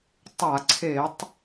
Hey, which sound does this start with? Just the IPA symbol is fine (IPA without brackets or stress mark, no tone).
tˤ